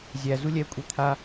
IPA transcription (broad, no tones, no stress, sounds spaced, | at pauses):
zʲ æ z u lʲ ɛ kʷʼ e t̪ʰ a